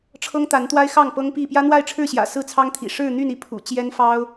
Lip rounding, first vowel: unrounded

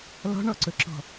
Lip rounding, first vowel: rounded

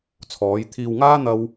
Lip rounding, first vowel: rounded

